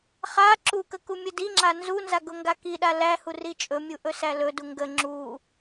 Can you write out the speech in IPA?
χ a ǁ u k ə k u mʲ ə d i ŋ͡ǁ a n z u n z a ɡ ʊ ŋ ɡ a k i ɗ a l æ h u r i t͡ʃʼ ɵ mʲ u ʔ ɵ s æ l ɵ d u ŋ ɡ ə ŋ͡ǁ u

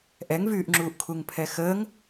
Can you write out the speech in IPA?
ʔ ɛ ŋ v yː ʔ ŋ͡ǁ uː ʔ kʰ u ŋ pʰ ɛ x əː ŋ

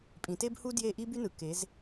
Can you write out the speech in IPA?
pʼ ĩ˩˧ t e˥ b h u˥ d j e˦˨ ʔ i˥ b y˥ n ɯ˩˧ k e˩˧ z

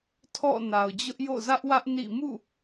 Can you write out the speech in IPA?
tʰ ɔ̰˦˨ n a˨ ʊ̯ d͡ʑ ʊ˦ ʔ j o̰˦˨ z ä˦ ʔ w ä˦ ʔ n ḭ˦˨ m ṵ˦˨

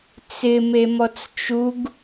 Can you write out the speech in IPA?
t͡s ɪ m e m ɔ t͡s t͡ʃ u ɡ

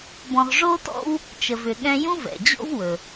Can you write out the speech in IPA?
b ɔ̃˧ ʁ ʐ o˥ t ɔ̰˥ w | t͡ʃ ə˧ v ʏ˧ ɠ ɛ̃˥ j ũ˥ v ɛ̰˩ d͡ʑ o̰˥ v w ɵ˩

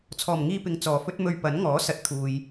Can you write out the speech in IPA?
t͡sʰ ɔː˨˩ m ŋ iː˧ p ɪ˨ ŋ t͡s ɔː˨˩ f ɵ˥ t̚ m ɵ˧ ɥ p ɐ˨˥ n ŋ ɔː˨˥ s ɐ˨ t̚ t̪ʰ uː˨ j

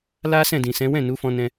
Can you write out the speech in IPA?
l a˦ s ɛ̃˦˨ d ĩ˨ s ɛ̃˨˦ w ɛ̃˦˨ n u˨˦ f ɔ̃˧ n ɛ̃˧

